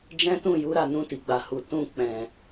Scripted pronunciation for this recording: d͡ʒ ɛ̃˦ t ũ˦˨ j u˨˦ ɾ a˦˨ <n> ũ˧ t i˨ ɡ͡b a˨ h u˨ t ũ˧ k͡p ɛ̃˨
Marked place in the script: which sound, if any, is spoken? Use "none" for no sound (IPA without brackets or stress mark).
n